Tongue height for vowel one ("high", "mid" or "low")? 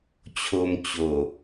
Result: mid